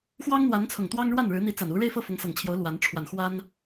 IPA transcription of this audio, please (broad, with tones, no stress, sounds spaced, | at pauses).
x w ɑ˥ ŋ n̪ w a˧˥ n t͡sʰ ʊ˨˩ ŋ t̪ w ɑ˥ ŋ ɻ w a˥˩ n ɻ ɻ̩˧˥ n̪ i˧˥ t͡s a˨˩ n u˧˥ ɻ e˥˧ ɪ̯ f ɤ˥˩ f ʊ˧˥ ŋ s ɤ˨˩ ŋ t͡ɕʰ j o˧˥ ʊ̯ l w a˧˥ n ʈ͡ʂʰ w a˨˩ n x w a˥ n